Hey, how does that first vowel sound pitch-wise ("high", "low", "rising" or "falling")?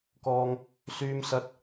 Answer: high